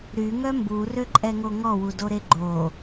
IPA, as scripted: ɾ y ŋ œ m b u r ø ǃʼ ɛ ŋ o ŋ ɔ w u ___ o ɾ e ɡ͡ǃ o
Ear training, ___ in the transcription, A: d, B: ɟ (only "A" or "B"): A